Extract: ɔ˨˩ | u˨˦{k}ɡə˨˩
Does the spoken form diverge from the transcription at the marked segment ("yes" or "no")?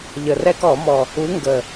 yes